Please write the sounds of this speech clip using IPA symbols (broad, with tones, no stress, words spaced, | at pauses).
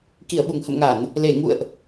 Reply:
ki˧˩ə̯ɓu˧˩ŋhə̰˧˨mŋa˧˩˨n | le˧˩ ŋṵ˧˨ə̯ʔ